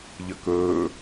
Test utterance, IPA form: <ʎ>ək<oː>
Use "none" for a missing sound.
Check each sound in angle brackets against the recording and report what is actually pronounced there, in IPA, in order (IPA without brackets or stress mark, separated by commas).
ʎ, ɵː